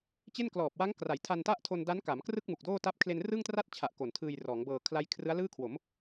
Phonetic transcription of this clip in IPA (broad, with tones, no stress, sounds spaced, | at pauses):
t͡ɕ e˥˩ n k l ɔː˨˩ p̚ w a˦˥ ŋ k r a˩˦ j tʰ a˧ n t a˥˩ ʔ tʰ o˧ n d a˦˥ n k a˩˦ m k r ɯ˥˩ k̚ m u˨˩ k̚ d oː˥˩ t a˥˩ p̚ kʰ l e˧ n r ɯ˥˩ ŋ t r a˥˩ t̚ t͡ɕʰ a˨˩ ʔ k o˨˩ n tʰ ɯː˧ j r ɔː˩˦ ŋ b ɤː˧ kʰ l a˦˥ j kʰ r ɯ˦˥ a̯ l ɯː˥˩ kʰ w o˩˦ m